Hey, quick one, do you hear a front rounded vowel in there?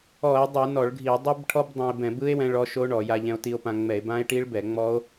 no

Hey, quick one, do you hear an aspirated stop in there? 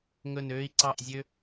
no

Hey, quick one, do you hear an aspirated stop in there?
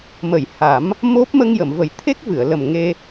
yes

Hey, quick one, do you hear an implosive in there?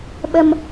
yes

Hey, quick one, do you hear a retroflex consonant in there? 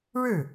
yes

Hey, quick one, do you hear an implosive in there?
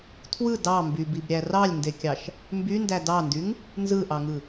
no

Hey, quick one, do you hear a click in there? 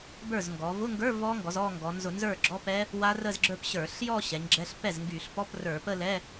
yes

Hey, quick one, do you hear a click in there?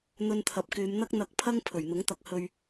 no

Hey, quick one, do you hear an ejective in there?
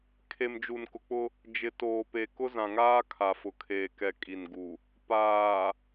yes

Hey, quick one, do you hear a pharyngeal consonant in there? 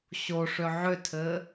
yes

